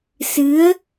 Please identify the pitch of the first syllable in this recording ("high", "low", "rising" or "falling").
rising